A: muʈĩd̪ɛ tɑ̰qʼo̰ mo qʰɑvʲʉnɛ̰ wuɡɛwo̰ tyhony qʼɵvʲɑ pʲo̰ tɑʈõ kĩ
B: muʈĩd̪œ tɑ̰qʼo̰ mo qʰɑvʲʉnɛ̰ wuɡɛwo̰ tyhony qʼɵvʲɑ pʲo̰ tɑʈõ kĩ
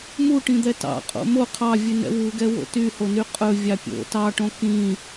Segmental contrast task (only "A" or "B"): A